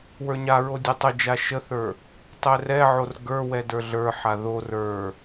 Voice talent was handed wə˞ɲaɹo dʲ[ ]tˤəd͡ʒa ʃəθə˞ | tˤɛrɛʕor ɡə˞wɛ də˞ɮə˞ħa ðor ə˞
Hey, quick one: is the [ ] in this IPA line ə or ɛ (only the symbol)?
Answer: ɛ